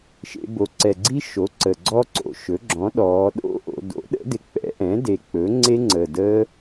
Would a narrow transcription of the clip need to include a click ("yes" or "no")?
yes